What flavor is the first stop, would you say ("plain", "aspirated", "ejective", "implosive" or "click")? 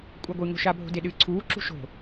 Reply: ejective